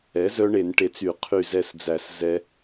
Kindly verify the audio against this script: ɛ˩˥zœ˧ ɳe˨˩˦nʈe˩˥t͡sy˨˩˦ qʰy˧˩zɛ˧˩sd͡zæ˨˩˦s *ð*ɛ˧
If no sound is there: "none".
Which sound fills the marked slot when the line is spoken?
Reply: z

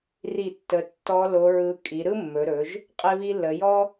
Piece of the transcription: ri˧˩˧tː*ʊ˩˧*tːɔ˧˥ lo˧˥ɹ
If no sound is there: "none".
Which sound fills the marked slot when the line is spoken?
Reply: ə˩˧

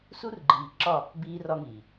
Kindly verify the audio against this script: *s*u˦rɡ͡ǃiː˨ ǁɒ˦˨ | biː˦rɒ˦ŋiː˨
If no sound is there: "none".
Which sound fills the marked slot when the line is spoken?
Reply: s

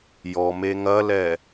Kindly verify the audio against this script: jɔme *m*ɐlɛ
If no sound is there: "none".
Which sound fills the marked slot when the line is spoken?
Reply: ŋ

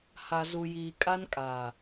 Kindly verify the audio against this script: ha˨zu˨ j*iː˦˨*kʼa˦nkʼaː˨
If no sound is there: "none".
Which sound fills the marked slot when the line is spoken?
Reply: iː˨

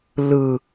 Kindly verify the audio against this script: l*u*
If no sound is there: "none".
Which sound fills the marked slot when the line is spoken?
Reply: ɯ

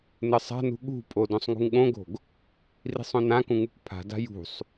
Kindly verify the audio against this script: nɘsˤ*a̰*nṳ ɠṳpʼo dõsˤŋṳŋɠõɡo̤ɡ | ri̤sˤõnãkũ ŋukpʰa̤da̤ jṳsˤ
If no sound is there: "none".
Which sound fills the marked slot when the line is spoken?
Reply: a̤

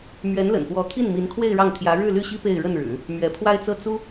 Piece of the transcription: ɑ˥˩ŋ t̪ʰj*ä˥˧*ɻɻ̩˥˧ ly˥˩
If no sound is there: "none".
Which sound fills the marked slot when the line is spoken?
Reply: ä˧˥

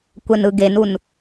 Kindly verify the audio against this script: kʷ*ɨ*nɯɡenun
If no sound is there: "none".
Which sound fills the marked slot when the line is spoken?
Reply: ɛ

